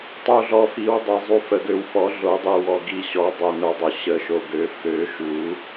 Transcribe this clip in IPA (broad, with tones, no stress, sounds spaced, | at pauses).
tˤ u˨ ɮ ɔ˨ f i˨˩˦ w dˤ ɛ˨ zˤ u˨ f ə˨ ɡ ø˨ w f ɔ˨˩˦ ɮ o˨˩˦ dˤ i˨ w ɔ˨ ɡ i˨ ɕ ɔ˨˩˦ dˤ ɛ˨ n o˨ dˤ ø˨ ɕ ə˨˩˦ ʃ o˨ ɡ ø˨˩˦ f ø˨˩˦ ʃ u˨˩˦